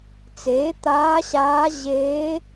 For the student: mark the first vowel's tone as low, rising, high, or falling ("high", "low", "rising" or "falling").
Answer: rising